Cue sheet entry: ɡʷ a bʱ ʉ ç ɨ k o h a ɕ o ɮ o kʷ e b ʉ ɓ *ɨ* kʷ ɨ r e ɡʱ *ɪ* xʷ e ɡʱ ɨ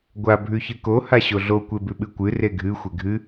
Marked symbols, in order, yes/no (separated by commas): yes, no